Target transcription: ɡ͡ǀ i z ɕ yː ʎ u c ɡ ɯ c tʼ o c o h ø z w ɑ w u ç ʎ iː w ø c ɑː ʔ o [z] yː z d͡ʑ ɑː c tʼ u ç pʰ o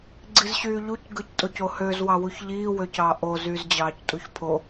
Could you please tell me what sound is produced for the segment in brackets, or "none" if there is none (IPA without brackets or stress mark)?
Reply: z